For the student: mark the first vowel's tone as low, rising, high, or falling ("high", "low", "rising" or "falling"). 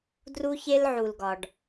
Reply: high